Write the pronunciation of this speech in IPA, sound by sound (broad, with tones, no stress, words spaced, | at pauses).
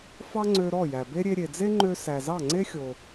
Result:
fɑ˥ŋ͡ǀø˧ ɾɔ˥˩jæ˩be˥ ɾʲe˧ɾʲe˩d͡ze˥ŋ͡ǃø˧ sæ˩zɑ˥˩ŋ͡ǀe˥xʲo˩